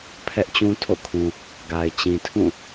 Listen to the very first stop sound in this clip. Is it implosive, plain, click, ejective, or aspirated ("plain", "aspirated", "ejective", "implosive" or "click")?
aspirated